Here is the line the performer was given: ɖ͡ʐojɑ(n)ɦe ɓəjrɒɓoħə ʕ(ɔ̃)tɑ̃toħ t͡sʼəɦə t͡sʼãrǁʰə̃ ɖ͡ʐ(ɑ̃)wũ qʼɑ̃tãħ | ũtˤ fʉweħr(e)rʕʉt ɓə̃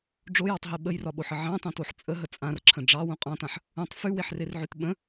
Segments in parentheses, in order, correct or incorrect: incorrect, incorrect, incorrect, correct

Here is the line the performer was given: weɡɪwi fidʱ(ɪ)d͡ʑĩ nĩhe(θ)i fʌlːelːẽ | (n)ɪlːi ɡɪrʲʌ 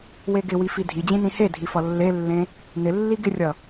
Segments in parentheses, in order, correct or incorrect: incorrect, incorrect, correct

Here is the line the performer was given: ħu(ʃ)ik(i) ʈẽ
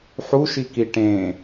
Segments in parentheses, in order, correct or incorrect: correct, correct

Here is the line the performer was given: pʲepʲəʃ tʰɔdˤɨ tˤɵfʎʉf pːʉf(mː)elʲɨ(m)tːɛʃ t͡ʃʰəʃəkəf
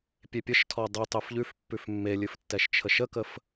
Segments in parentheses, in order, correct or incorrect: correct, incorrect

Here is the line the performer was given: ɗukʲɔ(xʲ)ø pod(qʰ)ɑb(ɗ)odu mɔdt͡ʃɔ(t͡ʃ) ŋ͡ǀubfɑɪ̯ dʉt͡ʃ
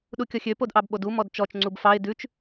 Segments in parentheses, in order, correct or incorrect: correct, incorrect, incorrect, correct

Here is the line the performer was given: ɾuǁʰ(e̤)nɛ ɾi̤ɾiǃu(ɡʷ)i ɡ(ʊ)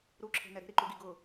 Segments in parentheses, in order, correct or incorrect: correct, incorrect, correct

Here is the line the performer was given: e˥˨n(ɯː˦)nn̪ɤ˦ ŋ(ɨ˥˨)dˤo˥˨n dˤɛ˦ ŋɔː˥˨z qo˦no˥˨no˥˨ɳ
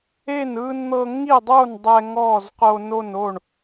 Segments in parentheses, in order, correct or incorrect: correct, incorrect

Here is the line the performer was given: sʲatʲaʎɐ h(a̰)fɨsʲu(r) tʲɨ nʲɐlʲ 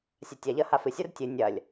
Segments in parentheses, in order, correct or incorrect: incorrect, correct

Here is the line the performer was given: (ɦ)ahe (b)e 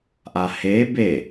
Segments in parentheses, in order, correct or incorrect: incorrect, correct

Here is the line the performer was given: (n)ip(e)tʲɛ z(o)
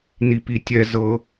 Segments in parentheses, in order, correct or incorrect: correct, incorrect, incorrect

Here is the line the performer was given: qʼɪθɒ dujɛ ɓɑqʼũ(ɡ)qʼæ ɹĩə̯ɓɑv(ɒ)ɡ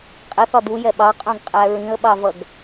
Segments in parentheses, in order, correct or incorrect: correct, incorrect

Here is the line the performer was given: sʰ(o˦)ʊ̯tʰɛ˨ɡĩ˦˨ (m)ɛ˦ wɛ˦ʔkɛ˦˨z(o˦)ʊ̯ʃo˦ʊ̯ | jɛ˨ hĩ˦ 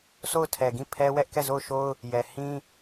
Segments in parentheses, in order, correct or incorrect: incorrect, incorrect, incorrect

